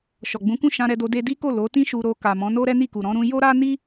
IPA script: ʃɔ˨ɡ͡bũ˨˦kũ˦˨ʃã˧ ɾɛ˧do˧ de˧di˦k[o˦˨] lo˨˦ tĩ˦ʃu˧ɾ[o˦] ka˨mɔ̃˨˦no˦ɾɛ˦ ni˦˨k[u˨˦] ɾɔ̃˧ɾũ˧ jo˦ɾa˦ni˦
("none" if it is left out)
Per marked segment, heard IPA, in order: o˦˨, o˧, u˨

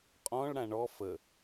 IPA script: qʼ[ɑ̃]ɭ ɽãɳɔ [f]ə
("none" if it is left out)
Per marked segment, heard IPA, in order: ɔ̃, f

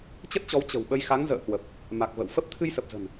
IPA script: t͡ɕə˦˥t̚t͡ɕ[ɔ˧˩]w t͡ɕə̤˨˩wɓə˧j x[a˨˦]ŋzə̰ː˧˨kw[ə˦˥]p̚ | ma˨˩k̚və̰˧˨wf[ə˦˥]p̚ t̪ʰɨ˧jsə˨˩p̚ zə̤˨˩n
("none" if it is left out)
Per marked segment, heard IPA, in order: ɔ˨˦, a˨˦, ə˨˩, ə˦˥

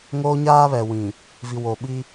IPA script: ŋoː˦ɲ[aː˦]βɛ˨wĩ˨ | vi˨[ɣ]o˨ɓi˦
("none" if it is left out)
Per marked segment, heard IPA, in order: aː˦, w

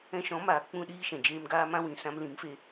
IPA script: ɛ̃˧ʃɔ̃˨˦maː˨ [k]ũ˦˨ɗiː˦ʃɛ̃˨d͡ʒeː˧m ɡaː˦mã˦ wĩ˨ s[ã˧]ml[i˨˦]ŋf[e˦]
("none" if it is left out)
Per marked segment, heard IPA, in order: k͡p, ã˧, ĩ˨˦, e˧

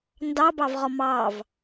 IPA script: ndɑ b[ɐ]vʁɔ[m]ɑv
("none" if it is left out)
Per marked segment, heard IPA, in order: ɑ, m

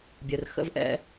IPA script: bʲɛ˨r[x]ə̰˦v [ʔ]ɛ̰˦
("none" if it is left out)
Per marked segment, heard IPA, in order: x, ʔ

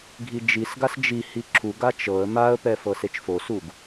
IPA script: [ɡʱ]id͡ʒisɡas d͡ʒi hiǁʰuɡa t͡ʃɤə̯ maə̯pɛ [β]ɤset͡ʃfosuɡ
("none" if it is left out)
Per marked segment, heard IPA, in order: ɡʱ, f

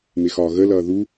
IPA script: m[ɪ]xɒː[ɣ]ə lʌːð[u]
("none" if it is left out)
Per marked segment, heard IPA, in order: ɪ, ɣ, u

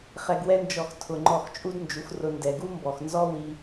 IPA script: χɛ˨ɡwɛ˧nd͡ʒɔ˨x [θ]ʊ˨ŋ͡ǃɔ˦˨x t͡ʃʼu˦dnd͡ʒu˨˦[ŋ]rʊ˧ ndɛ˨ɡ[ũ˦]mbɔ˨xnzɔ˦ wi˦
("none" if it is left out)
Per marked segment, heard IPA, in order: tʰ, x, u˦

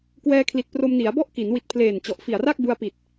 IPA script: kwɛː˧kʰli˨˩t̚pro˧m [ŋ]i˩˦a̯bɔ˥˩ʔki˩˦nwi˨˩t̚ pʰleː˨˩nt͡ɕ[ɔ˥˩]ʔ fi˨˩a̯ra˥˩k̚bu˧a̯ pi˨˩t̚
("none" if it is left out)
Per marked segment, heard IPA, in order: n, ɔ˨˩

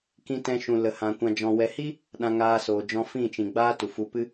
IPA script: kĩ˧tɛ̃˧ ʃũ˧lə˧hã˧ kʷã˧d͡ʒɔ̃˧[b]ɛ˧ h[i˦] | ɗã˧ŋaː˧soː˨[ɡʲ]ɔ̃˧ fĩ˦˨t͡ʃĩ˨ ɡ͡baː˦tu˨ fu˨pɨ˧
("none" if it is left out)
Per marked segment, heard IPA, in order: w, i˦, d͡ʒ

